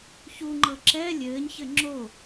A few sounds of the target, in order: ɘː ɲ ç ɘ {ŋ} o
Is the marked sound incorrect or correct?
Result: incorrect: ŋ͡ǁ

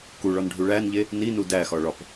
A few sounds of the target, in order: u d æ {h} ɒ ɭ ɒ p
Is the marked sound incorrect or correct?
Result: incorrect: x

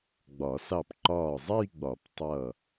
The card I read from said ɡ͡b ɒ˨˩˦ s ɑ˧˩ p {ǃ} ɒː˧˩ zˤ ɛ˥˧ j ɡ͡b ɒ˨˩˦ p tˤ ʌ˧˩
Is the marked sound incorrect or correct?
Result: correct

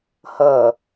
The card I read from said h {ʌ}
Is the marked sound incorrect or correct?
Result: correct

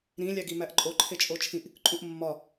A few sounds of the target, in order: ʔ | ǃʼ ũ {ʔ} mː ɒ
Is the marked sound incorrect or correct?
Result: correct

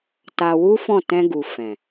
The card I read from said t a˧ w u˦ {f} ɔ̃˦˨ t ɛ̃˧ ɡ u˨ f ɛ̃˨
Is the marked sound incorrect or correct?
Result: correct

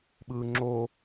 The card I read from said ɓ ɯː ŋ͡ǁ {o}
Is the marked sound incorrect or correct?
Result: correct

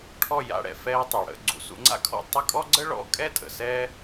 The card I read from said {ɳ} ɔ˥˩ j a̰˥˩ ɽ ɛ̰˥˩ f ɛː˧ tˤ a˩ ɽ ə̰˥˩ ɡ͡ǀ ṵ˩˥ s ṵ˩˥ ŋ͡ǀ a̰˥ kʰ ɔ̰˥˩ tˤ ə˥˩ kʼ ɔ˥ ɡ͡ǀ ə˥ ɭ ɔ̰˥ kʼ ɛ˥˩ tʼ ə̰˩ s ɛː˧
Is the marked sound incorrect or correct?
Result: incorrect: ʈʰ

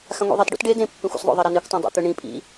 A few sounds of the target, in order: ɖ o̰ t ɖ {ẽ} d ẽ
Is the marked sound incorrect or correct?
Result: incorrect: e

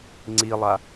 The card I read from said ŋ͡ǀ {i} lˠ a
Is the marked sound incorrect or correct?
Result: correct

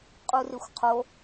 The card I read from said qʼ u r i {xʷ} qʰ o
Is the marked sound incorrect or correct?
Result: correct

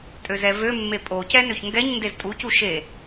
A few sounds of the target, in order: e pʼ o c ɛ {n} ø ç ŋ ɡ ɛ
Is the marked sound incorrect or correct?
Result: correct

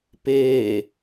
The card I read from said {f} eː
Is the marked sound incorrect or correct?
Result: incorrect: p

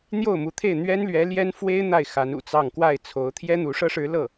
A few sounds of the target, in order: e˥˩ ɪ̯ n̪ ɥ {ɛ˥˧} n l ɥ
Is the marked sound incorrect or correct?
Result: incorrect: ɛ˥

